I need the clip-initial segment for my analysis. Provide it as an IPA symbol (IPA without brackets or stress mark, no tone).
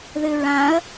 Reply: ð